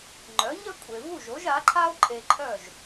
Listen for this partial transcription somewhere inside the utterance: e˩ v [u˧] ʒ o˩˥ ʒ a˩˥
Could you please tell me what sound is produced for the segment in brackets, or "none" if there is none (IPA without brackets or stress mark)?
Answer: u˥˩